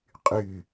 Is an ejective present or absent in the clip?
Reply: present